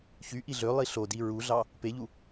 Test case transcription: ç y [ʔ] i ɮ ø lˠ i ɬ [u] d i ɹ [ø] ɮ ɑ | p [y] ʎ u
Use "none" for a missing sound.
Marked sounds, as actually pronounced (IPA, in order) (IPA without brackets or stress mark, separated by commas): ʔ, o, u, e